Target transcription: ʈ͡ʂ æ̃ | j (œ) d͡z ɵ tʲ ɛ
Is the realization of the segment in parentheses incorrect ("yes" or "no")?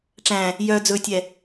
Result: no